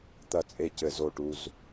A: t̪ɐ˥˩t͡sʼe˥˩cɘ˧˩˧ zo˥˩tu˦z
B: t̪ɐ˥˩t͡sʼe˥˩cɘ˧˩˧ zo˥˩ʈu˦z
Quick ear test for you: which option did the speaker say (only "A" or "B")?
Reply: B